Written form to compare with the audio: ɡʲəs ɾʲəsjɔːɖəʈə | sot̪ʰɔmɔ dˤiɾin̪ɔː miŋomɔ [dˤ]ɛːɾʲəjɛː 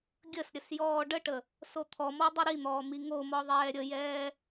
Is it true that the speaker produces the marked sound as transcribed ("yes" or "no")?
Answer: no